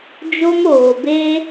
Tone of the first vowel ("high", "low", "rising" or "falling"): high